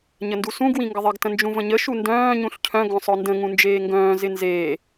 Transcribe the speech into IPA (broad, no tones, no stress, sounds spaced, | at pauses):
ɲ ə n d u s ũ ɡ w ĩ ŋ ɡ ə ðˤ ɪ ɡ t ə̃ n d͡ʒ ũ v ə̃ ɲ ə ʃ u n d œ̃ː ɲ ũ ɬ cʰ œ̃ ɡ œ̃ sˤ œ n d ə̃ ŋ ũ n d͡ʒ eː ŋ ɡ œ̃ː z ɪ n z eː